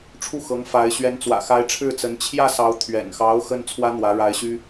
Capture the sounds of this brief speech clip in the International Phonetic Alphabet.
ʈ͡ʂʰ u˥˩ x ɤ˧˥ ŋ f a˧˥ ɪ̯ ɕ ɥ ɛ˧˥ n t͡s w ä̰˨˩ x a˧˥ ɪ̯ ʈ͡ʂʰ ɻ̩˥˩ t͡s ə˧˥ n t͡ɕʰ j ä˥˩ s ɑ˧˥ ʊ̯ t̪ʰ ɥ ɛ̰˨˩ n x ɑ˧˥ ʊ̯ x ə˥ n t͡sʰ w ä˥ n̪ w ä˧˥ ɻ a˧˥ ɪ̯ ɕ y˥

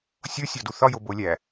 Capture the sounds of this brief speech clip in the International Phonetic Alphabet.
sʲ o sʲ ɒ d u θ ɒ j o b o lʲ æ

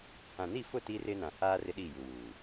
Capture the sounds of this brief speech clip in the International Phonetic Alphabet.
h ã˨ n i˦˨ f ʊ˦˨ t i˦ r ɪ˦ n ã˨ h aː˦ r ɪ˦ ɗ i˦˨ j u˨ w uː˨

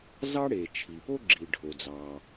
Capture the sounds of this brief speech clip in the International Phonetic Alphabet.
z ɑ˥ ɽ e˩ t͡ʃʰ i˩ p o˥ ɡ͡ǁ i˩ ɖʱ o˩ d͡z ɑ˩

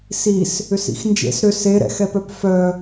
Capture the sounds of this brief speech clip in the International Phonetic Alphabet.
s i s | ʏ s ḭ x n d͡ʒ ḛ s ɾ ʏ s e ɾ ɛ̰ x ɛ p œ p f œ

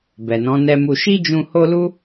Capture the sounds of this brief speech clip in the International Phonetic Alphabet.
b ɛ˨ n ɔ̃˨˦ n ɛ˧ m u˧ ʃ i˦ d͡ʒ ũ˧ h o˦ l u˦

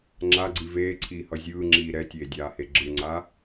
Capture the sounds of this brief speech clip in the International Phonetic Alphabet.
ŋ͡ǁ a ɡ͡ǀ i v eː ǀʰ iː h ʌ zʲ ɯː ŋ͡ǁ iː ɾ ɛ tʲ eː dʲ aː h e ɡ͡ǁ ɯ ŋ͡ǀ a

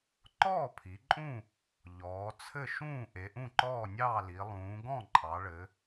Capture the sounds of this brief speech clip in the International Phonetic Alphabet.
ǃ ɔː˥˩ pʰ i˩˧ ǃʼ ũ˥˩ | ʎ ɔː˩˧ t͡sʰ ɘ˥˩ ʃ ũː˥˩ ʔ e˩˧ ʔ ũ˥˩ ǃ ɔː˥˩ nʲ ɑː˥˩ l i˩˧ lˠ ũː˩˧ ɡ ɔ̃˥˩ ǃʼ ɑ˩˧ ɭ ɘ˩˧

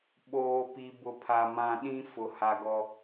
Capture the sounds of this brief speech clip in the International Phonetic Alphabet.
ɓ oː˨ p i˨ b ʊ˨ pʰ a˨ m ã˨ ɗ ĩ˦ f ʊ˨ h a˨ ɡ ɔ˨

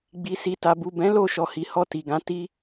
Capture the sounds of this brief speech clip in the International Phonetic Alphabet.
ɡ͡b i˨ s i˨ t a˨ b u˨ b ɛ̃˨˦ l o˦˨ ʃ ɔ˨ h i˨ h ɔ˧ t i˨ ɡ ã˨˦ t i˦

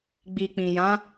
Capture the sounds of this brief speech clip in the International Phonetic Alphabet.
ɡ͡b i˨ k͡p ĩ˨ j ã˨˦

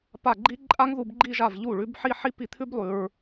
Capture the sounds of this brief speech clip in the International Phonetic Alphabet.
p a˥˩ ɡ͡ǃ i˥ ǃʼ a˥ ŋ ð u˥˧ b ɡ͡ǃ i˥˧ ʒ a˥˩ v ʎ u˥˩ ɭ ʉ˧˥ b ħ i˥˧ ħ i˥ p i˥˩ t̪ʰ ʉ˥ b lˠ ʉ˨ ɹ

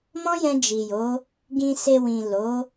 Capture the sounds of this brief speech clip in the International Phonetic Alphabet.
m ɔ̃˦ j ɛ̃˧ d͡ʒ i˨ j o˨˦ | ɡ ĩ˨ s e˨ w ĩ˨ l o˨˦

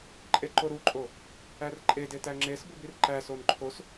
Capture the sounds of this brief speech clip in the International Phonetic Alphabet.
ǃʼ e ǃ o ɾ u ǃʼ o | æ r ǃʼ e d e t æ ŋ͡ǁ e s b u b i r ǃ æ s o n ǃʰ o s

